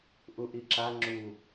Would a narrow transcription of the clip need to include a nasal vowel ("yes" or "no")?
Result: no